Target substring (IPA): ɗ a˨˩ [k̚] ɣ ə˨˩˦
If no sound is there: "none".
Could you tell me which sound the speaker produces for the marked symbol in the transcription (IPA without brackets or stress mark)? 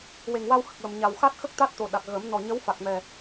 k̚